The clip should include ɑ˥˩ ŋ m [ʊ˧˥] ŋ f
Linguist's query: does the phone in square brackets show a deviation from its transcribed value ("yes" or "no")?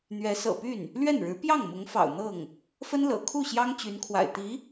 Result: no